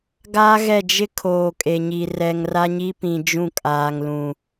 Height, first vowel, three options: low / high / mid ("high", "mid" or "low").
low